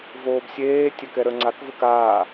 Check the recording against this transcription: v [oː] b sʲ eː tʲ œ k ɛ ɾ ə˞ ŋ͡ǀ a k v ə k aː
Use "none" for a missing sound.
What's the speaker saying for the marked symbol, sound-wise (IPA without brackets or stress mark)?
oː